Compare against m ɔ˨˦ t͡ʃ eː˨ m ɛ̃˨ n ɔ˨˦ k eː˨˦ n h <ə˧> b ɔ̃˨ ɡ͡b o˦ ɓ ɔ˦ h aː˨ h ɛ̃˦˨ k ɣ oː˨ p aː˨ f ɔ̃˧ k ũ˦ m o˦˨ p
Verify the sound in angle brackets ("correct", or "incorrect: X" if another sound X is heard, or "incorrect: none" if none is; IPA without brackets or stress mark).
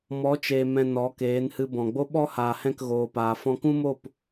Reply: incorrect: ɨ˧